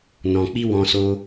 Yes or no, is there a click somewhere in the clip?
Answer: no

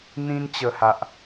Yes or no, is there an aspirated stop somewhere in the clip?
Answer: no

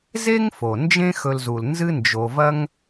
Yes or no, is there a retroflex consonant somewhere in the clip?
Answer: no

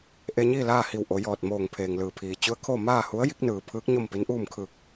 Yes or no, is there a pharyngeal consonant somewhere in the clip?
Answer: no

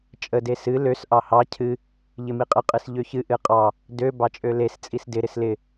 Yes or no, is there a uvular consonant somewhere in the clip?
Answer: yes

